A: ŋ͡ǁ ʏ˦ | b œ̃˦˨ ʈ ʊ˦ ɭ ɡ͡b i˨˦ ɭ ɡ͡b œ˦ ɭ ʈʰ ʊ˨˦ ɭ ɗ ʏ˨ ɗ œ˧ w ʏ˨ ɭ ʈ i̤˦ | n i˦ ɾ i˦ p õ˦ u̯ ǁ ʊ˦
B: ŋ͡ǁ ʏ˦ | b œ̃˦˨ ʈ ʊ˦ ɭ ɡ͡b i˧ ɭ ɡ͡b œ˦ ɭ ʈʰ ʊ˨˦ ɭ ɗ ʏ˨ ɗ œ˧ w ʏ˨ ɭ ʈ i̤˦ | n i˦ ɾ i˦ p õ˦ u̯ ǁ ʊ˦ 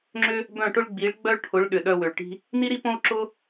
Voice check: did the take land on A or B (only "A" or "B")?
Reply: A